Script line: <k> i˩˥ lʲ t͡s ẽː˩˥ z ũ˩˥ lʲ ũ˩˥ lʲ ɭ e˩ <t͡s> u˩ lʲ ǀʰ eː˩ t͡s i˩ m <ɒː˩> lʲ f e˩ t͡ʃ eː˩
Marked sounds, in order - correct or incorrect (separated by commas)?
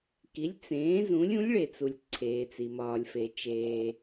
correct, correct, correct